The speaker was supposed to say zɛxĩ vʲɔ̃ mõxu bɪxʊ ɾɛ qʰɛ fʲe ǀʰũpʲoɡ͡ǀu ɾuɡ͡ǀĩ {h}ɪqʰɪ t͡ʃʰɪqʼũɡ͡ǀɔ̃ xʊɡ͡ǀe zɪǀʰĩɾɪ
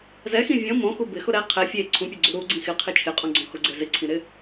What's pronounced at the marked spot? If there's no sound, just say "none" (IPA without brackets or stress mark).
x